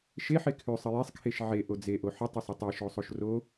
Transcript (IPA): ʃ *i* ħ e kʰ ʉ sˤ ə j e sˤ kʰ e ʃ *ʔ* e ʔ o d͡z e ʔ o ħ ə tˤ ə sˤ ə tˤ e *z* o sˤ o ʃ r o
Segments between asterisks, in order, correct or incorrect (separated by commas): incorrect, incorrect, incorrect